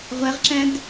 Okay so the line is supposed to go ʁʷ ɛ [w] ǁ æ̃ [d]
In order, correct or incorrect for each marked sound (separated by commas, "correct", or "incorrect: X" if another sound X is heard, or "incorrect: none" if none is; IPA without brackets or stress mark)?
incorrect: ʁ, correct